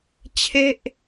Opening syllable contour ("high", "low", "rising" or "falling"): falling